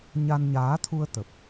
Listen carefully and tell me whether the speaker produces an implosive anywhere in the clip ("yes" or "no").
no